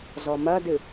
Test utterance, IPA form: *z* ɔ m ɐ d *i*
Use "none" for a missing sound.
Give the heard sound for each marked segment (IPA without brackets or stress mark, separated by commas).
z, ɨ